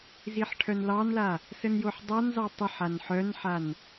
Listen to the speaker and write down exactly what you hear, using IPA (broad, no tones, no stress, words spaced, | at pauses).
ziħʈʰœnlɑnla | sənjoħdˤanzɑ tˤəħ anħœnħan